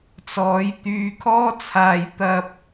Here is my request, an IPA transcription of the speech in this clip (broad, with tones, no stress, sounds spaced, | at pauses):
t͡s ɔː˨˧ j t̪ yː˧ kʰ ɔː˥ t͡sʰ aː˧ j t̪ ɐ˧ p̚